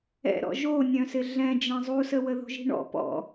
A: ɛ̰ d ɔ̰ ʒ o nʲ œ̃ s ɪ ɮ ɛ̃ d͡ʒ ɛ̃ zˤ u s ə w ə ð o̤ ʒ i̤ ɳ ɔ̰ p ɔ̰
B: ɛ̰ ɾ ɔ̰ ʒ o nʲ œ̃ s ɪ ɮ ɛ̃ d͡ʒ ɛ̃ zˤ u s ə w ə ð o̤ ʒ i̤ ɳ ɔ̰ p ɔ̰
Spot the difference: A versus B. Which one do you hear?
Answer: B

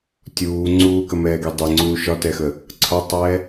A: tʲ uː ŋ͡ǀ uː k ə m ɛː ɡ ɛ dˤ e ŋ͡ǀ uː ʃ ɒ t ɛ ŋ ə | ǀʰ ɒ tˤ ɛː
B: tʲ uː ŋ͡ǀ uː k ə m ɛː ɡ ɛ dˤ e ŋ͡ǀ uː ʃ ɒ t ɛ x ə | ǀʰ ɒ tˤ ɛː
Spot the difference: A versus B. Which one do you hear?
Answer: B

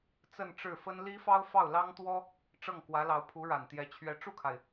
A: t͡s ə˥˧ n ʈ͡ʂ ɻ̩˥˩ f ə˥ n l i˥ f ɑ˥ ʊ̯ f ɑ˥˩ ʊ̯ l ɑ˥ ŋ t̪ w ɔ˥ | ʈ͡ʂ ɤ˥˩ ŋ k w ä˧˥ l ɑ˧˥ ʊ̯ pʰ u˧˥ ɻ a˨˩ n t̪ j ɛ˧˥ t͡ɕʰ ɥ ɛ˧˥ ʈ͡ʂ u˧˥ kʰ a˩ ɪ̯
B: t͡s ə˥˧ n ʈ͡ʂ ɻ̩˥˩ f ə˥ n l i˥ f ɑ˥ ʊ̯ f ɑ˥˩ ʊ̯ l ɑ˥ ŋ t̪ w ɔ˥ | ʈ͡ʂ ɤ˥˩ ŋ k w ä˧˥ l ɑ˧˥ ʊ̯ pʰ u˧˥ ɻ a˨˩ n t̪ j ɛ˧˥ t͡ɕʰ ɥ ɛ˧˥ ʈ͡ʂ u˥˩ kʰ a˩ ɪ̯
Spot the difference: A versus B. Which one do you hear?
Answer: B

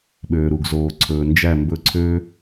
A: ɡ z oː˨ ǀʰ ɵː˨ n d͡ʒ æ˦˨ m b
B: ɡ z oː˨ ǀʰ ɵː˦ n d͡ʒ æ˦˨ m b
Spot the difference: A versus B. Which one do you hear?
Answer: A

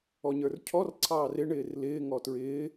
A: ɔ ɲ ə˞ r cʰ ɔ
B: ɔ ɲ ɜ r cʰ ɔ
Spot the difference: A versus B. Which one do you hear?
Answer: A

